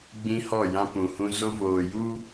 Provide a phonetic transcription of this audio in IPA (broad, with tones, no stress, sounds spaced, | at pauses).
ɡ͡b ĩ˦ h ɔ˦˨ j ã˦ p ũ˨ h ũ˦ z o˦ v oː˨ j u˦